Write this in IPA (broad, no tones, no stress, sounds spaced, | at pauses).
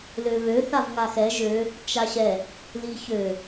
l ø β ø θ a v ŋ a x ɛ ʒ ø | t͡ʃ a ɕ ɛ | l i ç ø